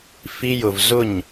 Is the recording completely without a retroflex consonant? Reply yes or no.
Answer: yes